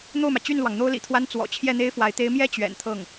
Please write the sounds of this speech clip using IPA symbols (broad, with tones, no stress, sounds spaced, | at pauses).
n̪ o˥˩ ʊ̯ m ä˩ t͡ɕ y˥˩ n l w ɑ˩ ŋ n̪ o˥ ʊ̯ l ḭ˨˩ t̪ʰ w a˥ n t͡s w ɔ̰˨˩ t͡ɕʰ j ɛ˥˩ n̪ e˥ ɪ̯ f w a˧˥ ɪ̯ t̪ e˧˥ ɪ̯ m j ɛ˥ t͡ɕ ɥ ɛ̰˨˩ n t̪ʰ ɤ˥˩ ŋ